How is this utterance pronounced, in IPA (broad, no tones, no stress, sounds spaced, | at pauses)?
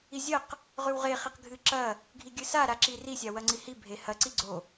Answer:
i zʲ ɐ q | ʁ ʉ w ʁ e χ i q ɡʱ ɨ ǁ ɐ | ɡʱ i ɡʲ ɨ s a ɾ a ǁ i r i sʲ a w ɐ ŋ͡ǀ i h i bʱ e h ɐ ǀ i ɡ͡ǀ o